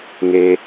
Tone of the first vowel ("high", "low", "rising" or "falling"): high